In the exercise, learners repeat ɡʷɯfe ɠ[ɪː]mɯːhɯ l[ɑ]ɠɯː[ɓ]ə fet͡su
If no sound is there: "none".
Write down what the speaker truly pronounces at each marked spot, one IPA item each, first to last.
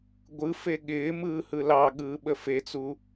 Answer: ɪː, ɑ, ɓ

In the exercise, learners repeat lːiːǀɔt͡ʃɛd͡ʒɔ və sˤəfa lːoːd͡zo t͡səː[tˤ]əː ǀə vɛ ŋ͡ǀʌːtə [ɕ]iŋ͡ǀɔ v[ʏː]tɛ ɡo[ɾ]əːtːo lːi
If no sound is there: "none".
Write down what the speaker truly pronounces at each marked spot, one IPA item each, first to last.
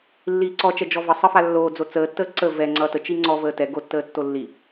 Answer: tː, t͡ʃ, əː, tː

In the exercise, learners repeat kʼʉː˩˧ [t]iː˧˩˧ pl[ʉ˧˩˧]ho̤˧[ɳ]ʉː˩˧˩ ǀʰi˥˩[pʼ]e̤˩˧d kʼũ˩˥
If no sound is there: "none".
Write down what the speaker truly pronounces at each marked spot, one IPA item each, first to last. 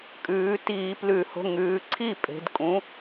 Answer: t, ʉ˧˩˧, ŋ, pʼ

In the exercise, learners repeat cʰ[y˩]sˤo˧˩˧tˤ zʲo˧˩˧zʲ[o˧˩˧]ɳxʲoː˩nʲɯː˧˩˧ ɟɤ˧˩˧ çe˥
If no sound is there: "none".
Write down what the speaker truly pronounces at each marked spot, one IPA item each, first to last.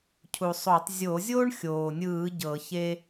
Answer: u˩, o˥

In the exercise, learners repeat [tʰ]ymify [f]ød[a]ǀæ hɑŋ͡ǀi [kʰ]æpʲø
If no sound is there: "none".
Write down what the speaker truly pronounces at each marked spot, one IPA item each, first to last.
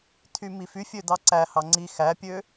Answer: tʰ, fʲ, ɑ, x

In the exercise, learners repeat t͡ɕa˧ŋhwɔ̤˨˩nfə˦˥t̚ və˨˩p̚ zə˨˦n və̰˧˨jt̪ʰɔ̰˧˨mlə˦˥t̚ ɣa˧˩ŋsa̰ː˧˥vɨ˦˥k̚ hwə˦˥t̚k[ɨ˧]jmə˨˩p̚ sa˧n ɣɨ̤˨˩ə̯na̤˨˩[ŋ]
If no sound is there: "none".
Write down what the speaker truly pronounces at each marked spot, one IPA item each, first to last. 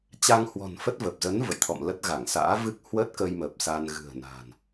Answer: ə˧, n

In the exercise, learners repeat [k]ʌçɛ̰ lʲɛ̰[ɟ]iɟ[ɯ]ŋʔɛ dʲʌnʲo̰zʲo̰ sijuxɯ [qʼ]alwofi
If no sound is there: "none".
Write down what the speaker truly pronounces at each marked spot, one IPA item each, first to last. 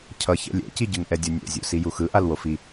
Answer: cʰ, c, ɯ, ʔ

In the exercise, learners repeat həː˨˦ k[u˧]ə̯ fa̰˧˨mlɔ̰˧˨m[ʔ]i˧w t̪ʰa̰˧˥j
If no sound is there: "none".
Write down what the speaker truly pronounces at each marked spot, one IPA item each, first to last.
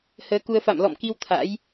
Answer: u˧, k

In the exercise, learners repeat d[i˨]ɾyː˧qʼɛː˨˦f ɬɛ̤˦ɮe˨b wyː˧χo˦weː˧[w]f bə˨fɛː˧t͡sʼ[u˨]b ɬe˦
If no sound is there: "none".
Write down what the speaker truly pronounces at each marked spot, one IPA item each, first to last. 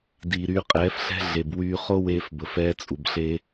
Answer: iː˨, none, u˨

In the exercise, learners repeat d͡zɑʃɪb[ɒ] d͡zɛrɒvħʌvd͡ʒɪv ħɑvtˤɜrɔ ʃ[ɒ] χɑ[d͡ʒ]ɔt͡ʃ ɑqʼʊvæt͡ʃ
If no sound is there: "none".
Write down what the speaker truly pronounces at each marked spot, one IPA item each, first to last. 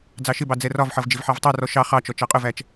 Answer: ɑ, ɑ, t͡ʃ

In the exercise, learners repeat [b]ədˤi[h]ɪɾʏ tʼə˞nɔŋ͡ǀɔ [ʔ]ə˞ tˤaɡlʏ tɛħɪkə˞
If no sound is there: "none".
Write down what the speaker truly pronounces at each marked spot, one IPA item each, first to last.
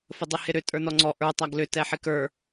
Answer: f, h, ʔ

